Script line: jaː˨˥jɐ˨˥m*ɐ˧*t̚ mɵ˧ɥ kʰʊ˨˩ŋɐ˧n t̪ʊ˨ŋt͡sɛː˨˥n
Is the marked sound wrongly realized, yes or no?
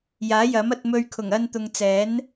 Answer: no